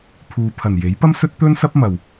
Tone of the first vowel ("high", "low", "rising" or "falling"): low